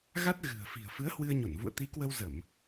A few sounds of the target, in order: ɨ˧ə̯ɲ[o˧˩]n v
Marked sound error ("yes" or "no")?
no